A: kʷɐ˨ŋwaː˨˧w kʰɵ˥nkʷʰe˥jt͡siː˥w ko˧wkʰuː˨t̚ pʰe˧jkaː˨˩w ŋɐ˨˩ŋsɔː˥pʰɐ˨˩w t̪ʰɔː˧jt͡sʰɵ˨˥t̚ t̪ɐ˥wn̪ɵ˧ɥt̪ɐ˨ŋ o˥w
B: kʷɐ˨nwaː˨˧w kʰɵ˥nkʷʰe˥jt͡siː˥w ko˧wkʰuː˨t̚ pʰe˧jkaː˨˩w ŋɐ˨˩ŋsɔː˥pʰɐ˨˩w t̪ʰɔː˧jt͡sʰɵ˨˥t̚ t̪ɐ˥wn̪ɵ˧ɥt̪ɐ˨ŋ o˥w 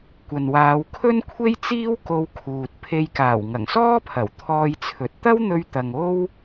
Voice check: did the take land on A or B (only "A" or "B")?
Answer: B